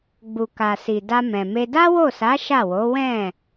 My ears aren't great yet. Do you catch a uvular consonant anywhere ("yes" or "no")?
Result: no